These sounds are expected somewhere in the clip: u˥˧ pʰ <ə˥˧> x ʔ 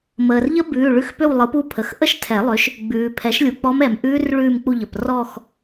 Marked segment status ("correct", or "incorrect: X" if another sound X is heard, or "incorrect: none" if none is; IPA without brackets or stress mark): incorrect: ə˩˧˩